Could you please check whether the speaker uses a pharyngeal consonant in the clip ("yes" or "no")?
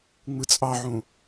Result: yes